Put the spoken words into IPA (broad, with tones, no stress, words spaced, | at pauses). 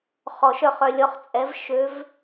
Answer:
χɔ˨˩˦ʃ œ˧χ œ˧lʲɔ˧˥χ t͡sʼɛ˧˥v ʃø˧˥v